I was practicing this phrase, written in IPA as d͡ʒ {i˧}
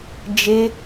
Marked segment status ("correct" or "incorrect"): incorrect